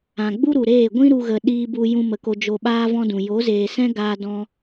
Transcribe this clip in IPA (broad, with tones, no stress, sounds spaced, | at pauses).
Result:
ã˨ ɡ͡b u˦ ɾ u˨ ɾ eː˦˨ ɡʷ ĩ˦ ɾ u˧ ɣ ə˨ ɗ iː˧ b u˧ j ũ˧ m ə˨ k o˧ d͡ʒ o˧ ɓ aː˦ v ɔ̃˦ d ũ˨ j o˨˦ z eː˨ s ɛ̃˦ ɡ aː˧ d ɔ̃˦